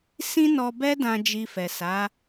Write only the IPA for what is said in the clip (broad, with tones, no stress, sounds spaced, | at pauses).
s ĩ˦ n ɔ˧ b ɛ˦ d ã˧ d͡ʒ i˧ f ɛ˨ s a˨˦